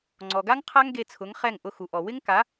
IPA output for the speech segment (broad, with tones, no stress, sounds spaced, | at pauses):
ŋ͡ǀ ɔ˨ ɡ a˦ ŋ qʰ a˦ ŋ ɡ e˧ t͡sʰ ʊ˨˦ ŋ χ ɛ˦˨ ŋ ʔ ʊ˧ x u˨ ʔ ɔ˨ w ɪ˦ ŋ k a˨˦